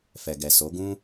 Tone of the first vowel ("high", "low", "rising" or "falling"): low